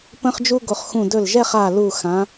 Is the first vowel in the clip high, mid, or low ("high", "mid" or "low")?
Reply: mid